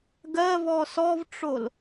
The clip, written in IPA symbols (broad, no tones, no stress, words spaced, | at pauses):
ɡɜvɔ sɔvʈ͡ʂol